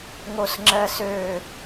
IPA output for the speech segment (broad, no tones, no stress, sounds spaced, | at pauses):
ŋ o s ŋ͡ǁ ɜ s ø